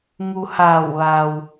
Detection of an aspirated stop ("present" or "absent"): absent